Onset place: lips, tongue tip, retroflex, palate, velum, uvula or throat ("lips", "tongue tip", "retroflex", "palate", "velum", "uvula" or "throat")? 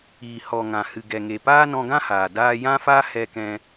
throat